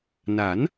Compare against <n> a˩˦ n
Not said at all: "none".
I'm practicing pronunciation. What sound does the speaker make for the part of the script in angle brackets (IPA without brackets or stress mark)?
n